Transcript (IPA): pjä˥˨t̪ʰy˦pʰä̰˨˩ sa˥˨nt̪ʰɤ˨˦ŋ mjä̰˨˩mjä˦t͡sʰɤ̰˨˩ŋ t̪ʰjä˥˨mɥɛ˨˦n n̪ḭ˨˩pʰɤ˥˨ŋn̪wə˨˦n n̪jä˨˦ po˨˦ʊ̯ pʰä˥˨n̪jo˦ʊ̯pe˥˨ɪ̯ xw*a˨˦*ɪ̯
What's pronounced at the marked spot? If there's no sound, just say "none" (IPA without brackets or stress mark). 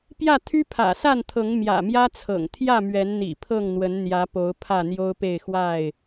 a˥˨